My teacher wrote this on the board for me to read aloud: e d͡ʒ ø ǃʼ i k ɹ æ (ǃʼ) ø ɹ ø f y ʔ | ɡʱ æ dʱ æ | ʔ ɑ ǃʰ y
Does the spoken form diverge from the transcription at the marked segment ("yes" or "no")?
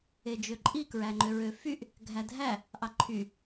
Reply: yes